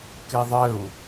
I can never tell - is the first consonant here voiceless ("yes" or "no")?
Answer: yes